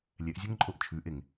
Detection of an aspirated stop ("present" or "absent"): present